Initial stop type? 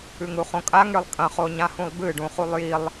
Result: ejective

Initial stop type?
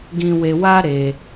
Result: plain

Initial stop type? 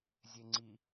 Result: click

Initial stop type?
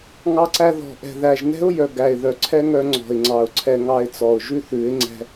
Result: click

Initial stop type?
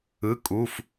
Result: ejective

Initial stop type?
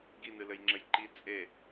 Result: plain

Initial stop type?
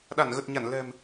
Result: implosive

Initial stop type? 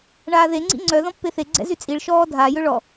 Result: click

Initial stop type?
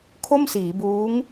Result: aspirated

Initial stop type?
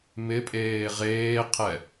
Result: ejective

